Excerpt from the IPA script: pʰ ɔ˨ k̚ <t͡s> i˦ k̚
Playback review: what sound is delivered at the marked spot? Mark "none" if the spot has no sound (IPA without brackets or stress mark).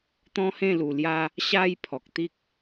t̪